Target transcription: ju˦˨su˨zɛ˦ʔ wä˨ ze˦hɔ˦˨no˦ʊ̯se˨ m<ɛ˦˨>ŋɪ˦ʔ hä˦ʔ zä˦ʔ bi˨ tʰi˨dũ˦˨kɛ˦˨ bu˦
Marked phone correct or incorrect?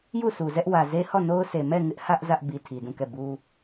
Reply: correct